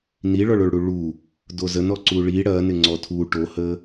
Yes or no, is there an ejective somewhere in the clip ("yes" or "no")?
no